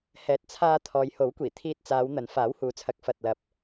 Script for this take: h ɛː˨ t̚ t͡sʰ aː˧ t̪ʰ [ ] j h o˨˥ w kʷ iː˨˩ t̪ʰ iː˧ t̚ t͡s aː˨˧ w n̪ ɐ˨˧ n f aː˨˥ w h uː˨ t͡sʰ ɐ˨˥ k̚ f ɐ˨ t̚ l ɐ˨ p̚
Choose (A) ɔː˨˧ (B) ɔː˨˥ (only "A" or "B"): A